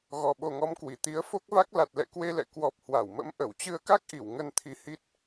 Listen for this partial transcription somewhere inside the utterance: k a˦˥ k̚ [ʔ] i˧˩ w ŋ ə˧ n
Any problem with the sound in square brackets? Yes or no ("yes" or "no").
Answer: no